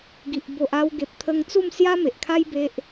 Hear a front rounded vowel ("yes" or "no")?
no